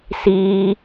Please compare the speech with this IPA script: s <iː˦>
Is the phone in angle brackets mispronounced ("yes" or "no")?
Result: no